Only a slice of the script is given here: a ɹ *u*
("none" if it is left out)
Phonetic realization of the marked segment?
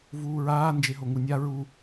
u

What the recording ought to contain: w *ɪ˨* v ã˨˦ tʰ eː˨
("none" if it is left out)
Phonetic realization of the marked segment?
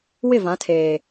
ɪ˦˨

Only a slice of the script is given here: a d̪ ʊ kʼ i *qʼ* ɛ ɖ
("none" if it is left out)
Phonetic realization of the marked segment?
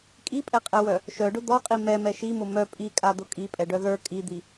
pʼ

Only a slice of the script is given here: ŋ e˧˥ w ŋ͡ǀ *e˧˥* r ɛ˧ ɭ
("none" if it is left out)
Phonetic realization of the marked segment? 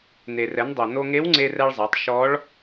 e˧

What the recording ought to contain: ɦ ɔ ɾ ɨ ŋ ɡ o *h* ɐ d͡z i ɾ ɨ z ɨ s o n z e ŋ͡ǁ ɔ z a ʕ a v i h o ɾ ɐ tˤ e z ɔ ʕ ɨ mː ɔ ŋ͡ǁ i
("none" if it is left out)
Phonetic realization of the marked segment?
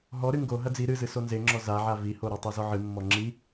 ɦ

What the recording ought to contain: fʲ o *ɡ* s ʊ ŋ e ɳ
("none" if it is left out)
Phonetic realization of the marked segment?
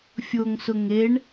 ŋ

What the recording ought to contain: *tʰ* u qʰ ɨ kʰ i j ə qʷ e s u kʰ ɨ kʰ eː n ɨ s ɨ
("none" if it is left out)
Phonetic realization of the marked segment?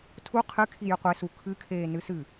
tʰ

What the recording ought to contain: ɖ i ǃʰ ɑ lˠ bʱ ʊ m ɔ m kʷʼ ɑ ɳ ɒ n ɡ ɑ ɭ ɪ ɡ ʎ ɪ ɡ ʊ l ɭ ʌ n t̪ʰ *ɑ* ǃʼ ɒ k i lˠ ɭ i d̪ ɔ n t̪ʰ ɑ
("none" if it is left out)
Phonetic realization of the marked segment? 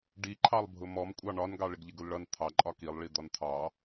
ɑ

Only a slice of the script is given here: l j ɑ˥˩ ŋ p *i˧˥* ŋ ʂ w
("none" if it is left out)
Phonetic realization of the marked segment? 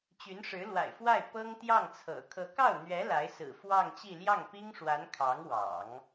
i˥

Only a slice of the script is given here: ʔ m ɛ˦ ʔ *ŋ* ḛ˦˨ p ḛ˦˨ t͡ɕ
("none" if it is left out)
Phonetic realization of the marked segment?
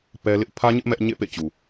ɲ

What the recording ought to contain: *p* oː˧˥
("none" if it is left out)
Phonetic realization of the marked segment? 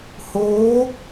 h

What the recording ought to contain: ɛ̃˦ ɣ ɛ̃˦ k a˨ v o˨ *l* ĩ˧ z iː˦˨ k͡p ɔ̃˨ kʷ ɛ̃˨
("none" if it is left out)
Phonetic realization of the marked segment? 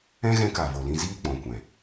l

